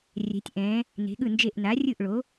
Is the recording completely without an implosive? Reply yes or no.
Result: no